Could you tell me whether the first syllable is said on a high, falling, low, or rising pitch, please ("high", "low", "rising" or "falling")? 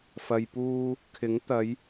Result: low